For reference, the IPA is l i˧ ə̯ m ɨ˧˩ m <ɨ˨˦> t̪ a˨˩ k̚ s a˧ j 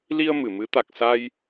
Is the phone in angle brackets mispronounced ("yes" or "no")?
no